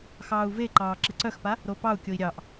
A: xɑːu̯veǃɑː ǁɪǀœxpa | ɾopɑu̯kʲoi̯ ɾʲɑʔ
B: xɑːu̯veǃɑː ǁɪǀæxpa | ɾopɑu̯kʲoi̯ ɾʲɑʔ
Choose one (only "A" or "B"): A